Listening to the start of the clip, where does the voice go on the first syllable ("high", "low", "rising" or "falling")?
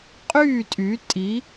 falling